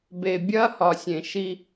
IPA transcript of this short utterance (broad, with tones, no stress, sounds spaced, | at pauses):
b e˨ bʲ ɐː˦ h ɒ˨ sʲ ẽ˨ ʃ i˧